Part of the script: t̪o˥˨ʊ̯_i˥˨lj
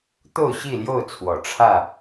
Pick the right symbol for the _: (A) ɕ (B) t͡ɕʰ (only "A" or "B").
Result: A